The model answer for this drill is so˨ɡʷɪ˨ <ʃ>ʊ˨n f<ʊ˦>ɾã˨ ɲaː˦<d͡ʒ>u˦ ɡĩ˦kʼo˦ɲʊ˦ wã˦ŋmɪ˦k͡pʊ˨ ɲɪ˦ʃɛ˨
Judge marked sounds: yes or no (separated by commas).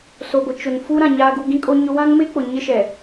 no, no, no